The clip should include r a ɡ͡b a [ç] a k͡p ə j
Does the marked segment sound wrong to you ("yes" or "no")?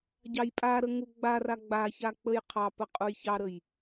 no